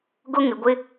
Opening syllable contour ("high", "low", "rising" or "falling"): high